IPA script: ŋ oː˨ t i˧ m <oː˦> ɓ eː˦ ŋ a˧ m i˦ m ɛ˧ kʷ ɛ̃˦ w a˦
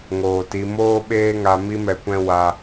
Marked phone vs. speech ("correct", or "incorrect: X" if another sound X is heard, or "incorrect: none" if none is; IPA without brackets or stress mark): correct